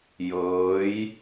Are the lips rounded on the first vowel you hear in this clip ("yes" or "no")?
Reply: no